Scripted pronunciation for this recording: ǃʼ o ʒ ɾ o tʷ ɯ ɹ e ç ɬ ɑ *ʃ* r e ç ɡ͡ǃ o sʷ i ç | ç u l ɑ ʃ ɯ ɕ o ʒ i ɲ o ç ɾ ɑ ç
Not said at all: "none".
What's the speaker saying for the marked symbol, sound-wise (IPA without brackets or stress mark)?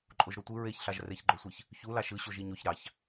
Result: ʒ